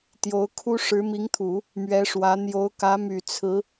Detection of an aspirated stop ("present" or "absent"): present